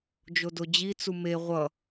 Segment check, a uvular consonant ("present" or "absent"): present